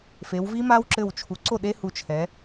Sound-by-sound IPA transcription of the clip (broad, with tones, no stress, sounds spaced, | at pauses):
f e˩˧ w v i˦˥ m a˦˥ w ǁ ɘ˧˩ w t͡ʃʰ u˩˧ ǀ o˥˩ ɗ e˦˥ h u˧˩ t͡ʃʰ ɛ˩˧